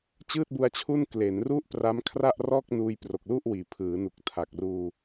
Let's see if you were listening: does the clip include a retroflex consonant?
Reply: no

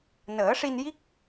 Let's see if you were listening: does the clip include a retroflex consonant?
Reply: yes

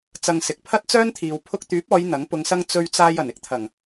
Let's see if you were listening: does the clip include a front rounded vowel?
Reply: yes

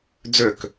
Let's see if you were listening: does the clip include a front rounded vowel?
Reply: yes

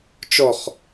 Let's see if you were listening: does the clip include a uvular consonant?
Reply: yes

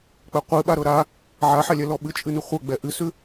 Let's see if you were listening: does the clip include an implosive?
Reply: yes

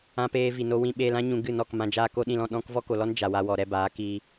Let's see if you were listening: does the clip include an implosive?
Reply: yes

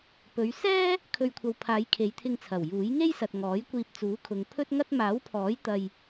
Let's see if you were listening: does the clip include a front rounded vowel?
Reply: no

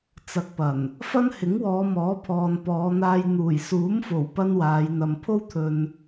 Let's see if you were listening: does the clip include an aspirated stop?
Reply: yes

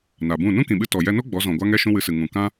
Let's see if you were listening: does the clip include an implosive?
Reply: yes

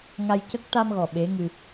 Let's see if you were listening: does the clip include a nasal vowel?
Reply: no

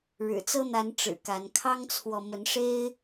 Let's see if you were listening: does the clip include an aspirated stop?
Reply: yes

